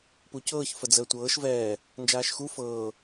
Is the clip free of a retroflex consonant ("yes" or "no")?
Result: yes